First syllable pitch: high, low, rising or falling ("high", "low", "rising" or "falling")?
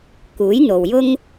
rising